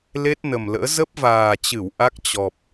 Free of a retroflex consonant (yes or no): yes